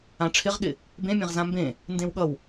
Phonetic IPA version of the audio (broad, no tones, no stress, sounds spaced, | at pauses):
ã ʈ͡ʂʰ ɪ ʁ ɠ ɪ | b ẽ mʲ ẽ ʁ z ã m b ẽ | n d ẽ w ɠ ʌ w